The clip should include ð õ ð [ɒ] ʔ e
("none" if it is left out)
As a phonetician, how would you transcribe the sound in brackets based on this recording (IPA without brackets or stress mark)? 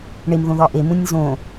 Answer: ɒ